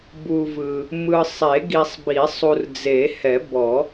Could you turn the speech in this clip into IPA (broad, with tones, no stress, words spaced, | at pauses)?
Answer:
bu˨vɯ˨ | mɯ˨sˤe˨˩˦ɡi˨sˤbi˨˩˦sˤ u˨rd͡ze˨˩˦hɛ˨˩˦bɔ˨˩˦